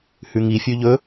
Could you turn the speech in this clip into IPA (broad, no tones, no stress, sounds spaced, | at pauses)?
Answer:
h ʉ ŋ i fʲ ʉ ʎ ɵ